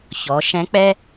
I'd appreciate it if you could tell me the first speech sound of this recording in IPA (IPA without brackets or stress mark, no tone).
ç